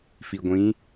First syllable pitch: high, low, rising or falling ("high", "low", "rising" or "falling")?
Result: low